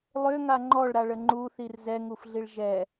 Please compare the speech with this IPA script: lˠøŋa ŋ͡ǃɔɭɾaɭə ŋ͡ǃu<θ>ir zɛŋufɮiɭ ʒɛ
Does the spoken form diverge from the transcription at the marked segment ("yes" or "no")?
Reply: no